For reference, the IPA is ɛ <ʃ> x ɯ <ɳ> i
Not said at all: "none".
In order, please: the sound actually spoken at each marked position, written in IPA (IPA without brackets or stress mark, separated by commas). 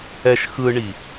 ʃ, ɳ